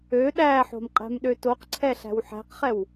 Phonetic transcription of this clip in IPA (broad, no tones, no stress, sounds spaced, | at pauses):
ø ɗ æ ħ o̤ m qʼ ɛ̤ m ɗ ø t o q ǀʰ ɛ ɬ æ̤ w ħ æ̤ q χ ɛ w